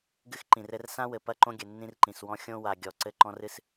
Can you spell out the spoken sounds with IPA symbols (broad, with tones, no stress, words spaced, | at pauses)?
ɡɨ˦xǃĩ˨rɘ˦r sã˦wɘ˨ pɐ˦˨ǃõ˦ɡʲɘ˨ nːĩ˦rǃĩ˨swɔ̃˦ xʲõ˦wa˨ ɡʲɔ˨ ǀɘ˦ǃɔ̃˦r ɨ˦s